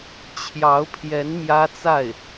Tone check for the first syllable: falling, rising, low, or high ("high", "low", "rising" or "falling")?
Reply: rising